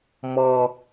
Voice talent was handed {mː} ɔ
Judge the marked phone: incorrect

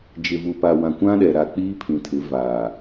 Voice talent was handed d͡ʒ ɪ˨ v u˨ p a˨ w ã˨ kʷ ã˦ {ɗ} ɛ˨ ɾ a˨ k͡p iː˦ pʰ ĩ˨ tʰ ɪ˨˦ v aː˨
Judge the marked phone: correct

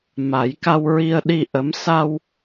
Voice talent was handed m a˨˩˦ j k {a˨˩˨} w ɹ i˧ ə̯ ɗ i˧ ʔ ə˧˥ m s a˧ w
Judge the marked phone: incorrect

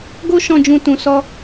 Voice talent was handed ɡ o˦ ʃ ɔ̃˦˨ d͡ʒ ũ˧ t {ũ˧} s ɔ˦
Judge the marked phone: correct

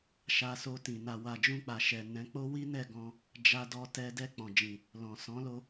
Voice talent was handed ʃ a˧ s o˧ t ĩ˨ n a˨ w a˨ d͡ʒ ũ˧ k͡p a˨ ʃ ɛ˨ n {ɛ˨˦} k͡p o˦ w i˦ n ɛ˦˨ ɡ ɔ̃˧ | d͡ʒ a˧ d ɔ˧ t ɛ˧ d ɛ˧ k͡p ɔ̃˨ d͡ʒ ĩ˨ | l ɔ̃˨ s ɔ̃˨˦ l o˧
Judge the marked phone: incorrect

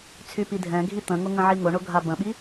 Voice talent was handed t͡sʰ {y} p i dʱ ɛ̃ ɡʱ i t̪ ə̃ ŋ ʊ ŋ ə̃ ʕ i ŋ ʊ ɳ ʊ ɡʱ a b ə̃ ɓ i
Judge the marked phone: correct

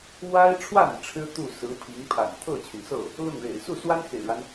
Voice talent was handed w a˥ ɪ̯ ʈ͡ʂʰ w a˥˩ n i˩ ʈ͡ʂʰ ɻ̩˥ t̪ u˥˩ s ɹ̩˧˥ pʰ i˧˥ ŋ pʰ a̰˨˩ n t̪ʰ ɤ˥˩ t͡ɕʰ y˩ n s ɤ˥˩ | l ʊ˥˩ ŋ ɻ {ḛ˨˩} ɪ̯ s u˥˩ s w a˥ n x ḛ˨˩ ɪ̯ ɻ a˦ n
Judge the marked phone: correct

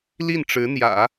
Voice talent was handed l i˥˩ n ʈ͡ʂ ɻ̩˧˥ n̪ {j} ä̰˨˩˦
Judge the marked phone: correct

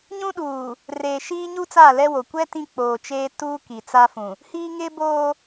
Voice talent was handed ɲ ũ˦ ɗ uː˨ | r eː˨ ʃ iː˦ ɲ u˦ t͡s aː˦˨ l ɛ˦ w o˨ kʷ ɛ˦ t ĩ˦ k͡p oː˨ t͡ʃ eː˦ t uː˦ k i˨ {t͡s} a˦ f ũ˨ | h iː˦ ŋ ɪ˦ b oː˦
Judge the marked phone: correct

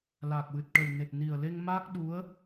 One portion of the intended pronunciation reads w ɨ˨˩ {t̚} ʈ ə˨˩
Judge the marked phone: correct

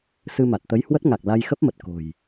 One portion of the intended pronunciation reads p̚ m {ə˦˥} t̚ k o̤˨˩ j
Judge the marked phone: incorrect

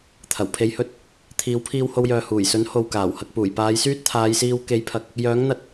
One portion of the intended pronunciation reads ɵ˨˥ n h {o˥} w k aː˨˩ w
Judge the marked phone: incorrect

